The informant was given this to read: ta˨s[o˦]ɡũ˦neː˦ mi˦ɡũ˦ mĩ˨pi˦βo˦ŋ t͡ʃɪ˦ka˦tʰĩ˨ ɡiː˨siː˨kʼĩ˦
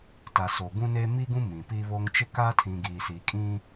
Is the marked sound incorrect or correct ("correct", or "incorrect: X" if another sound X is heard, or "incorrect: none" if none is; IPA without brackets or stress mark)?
incorrect: o˨